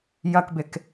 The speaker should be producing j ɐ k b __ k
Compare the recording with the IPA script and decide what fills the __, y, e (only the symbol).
e